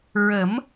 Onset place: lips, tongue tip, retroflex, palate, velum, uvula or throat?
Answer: tongue tip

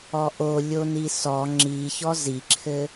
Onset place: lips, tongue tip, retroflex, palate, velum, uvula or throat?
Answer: throat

